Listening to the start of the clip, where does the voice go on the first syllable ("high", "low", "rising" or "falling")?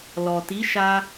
low